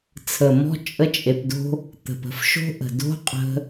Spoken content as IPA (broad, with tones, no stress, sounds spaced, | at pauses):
t͡sʰ ə˨ m ɔ̤˦ t͡ʃʼ ə˦ t͡ʃʼ e˧ p d o̤˦ | t̪ ə̤˨ p ə̤˦ f ʃ o̤˦ ʔ ə̤˨ d o̤˦ qʼ ə̤˦